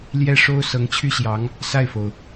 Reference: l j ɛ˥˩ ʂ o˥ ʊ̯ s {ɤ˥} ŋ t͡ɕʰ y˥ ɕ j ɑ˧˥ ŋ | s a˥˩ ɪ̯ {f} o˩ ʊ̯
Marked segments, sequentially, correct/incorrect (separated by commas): incorrect, correct